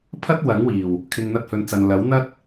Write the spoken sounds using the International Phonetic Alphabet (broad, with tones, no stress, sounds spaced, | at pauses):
pʰ ɐ˥ t̚ w ɐ˨˥ ŋ w iː˨˩ w | kʰ ɪ˨ ŋ n̪ ɐ˧ t̚ h ɵ˨˧ n t͡s ɐ˨ n l ɐ˨˥ w n̪ ɐ˥ t̚